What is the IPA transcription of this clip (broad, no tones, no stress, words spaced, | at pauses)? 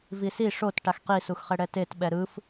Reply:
visi ʂot ʈaxqisuxχɛ ɽɛtet ɓɛɾɯf